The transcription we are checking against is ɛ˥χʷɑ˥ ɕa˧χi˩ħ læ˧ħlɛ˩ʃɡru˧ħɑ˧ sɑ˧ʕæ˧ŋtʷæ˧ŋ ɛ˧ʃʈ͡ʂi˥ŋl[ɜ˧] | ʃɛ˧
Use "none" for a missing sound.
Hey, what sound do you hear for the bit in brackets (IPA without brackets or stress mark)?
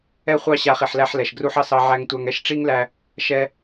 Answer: æ˧